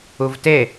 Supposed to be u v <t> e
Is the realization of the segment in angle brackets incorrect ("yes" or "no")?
no